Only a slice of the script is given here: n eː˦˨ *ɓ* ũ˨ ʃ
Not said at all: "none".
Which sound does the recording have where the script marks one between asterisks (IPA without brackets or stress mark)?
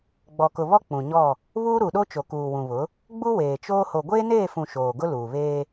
f